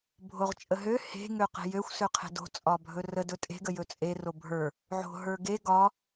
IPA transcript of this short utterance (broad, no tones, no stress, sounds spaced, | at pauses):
bʱ o ʁ t͡ʃʼ ə ɦ ø h e̤ ŋ ø q e̤ j ø xʷ s ø qʰ e̤ d o̤ t͡sʼ ɒ bʱ ɵ r ə d ɵ tʼ e̤ ɡ ə j ɵ t͡sʼ e r o bʱ ə˞ | ʕ o̤ ɦ ə˞ ɡ e ɡ ɒ